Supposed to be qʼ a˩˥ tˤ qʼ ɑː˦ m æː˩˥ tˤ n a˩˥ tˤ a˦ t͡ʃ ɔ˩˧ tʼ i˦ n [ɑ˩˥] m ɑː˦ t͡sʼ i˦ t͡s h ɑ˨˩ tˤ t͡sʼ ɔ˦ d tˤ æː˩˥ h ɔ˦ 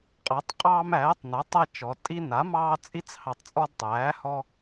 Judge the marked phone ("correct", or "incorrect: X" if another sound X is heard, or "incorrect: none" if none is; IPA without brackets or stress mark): incorrect: a˩˥